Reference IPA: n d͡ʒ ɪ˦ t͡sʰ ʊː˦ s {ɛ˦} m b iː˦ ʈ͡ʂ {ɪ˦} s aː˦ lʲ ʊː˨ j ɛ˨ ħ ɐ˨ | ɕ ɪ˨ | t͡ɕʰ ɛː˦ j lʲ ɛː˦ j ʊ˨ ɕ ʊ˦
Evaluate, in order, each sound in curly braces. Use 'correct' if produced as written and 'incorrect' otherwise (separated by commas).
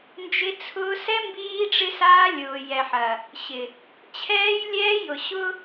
correct, correct